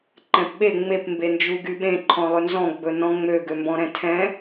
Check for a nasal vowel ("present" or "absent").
present